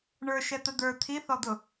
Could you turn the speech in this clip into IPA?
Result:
ɳ ə˞ ʃ ɛ t̪ ə d̪ ə˞ t̪ʰ i θ ɔ d̪ ʊ

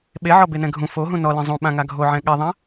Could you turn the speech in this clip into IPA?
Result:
ɓ e ʕ ɔ b e n ɛ̃ ɡʱ ũ f o ɦ ũ n ɔ l ĩ zˤ ũ ɓ ã ŋ a ɡʱ o ʕ ɛ̃ ɠ ɛ ðˤ ã

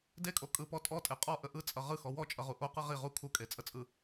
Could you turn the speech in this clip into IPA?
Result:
d e kʼ o kʼ ɯ p ɔ tʼ ɔ tʼ e qʼ ɔ ʔ ə ʔ ɯ t͡sʼ ʌ ʁ ɯ x ɔ w ɔ t͡ʃʼ ʌ ʁ u ʔ o q ɯ ʁ i ʁ u kʰ u kʼ e t͡sʼ ə t͡sʼ ɯ

